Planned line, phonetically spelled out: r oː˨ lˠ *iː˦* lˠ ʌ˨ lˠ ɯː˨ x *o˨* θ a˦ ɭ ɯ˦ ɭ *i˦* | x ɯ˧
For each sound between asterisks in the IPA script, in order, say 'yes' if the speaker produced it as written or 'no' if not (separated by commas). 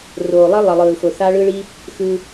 no, yes, yes